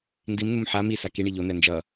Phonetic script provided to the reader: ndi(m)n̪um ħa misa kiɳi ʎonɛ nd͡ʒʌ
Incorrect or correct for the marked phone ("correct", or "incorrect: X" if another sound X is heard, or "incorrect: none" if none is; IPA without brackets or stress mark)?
correct